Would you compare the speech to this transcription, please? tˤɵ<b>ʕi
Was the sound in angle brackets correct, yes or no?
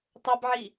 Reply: yes